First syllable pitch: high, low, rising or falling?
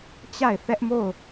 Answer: falling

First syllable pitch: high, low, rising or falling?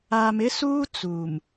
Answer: low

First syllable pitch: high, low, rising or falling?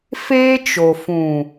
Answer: high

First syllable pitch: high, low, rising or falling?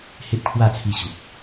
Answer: high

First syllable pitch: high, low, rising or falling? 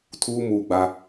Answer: high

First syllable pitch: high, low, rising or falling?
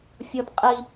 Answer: high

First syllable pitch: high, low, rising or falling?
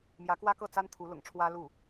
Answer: rising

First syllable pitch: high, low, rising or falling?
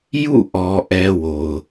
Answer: falling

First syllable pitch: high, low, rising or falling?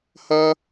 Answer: high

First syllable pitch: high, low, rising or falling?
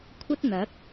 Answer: high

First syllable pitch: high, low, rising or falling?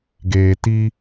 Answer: low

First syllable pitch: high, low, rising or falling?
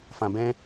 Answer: low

